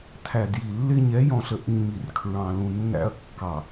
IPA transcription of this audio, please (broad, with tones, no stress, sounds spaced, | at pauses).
tʰ æ˨ d j i˨ lː ɪ˦ ɲ ɛ˨˦ j ɔ̃˨ ɬ ə˨ ʔ ĩ˨ ɲ i˨ r kʰ ɹ ɑ̃˨ l ũ˨ nː æ̰˦ ɐ̯ kː ɑ˨